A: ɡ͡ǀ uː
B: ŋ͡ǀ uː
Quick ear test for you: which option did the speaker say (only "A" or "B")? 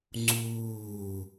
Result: B